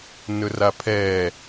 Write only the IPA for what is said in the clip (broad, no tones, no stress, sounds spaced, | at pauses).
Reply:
n ɵ r a pʰ ɛ